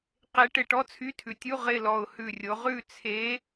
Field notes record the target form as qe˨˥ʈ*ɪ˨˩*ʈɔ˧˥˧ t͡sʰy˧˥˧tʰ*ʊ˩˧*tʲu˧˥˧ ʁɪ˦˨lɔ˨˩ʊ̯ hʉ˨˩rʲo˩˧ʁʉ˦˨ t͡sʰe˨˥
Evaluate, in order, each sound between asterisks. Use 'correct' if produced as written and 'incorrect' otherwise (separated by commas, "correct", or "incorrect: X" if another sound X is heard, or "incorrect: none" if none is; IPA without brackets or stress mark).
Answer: correct, incorrect: ʉ˩˧